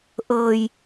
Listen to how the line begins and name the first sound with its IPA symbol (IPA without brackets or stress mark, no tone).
ʔ